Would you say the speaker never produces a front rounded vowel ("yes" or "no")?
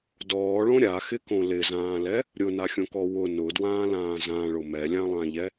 yes